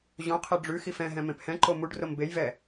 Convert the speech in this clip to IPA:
ʑ õ qʰ ɛ ɖ͡ʐ ʉ x i f ɛ̃ ɦ ɛ̃ m ẽ p h ɛ̃ ǃ o m u ɖ r o m b e j v ɛ

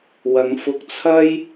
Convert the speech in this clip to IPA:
w ɐ˨˧ ŋ f ʊ˧ k̚ t͡sʰ ɐ˥ j

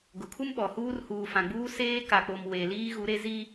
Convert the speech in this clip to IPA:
ɡ ʊ˨ kʰ u˦ m ɓ ɔ˨ h uː˦ r h uː˨ f ã˨ ɡ͡b uː˦ s eː˦ k a˨ k͡p o˨ m w e˨ l iː˦ ɣ u˨˦ ɾ e˦ z i˦

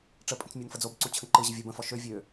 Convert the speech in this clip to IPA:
ʈ͡ʂ ə pʼ ə̃ t͡s mʲ o n f ə d͡z o b ǀ u t͡ɕʰ ə̃ ǃ ɯ ʑ ə vʲ ɤ b ə̃ f ɔ ʃ ø vʲ ø

